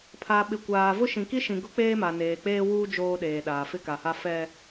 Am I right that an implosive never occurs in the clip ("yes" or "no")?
no